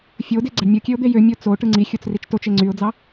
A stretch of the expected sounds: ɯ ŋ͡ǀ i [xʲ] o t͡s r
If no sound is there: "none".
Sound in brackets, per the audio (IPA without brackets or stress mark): xʲ